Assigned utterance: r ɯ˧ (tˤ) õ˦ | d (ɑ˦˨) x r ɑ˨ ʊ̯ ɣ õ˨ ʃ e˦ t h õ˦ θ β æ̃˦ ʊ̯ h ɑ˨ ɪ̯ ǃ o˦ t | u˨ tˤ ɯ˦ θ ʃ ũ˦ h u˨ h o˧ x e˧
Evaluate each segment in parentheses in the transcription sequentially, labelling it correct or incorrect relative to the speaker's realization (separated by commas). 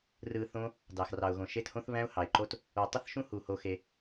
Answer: incorrect, incorrect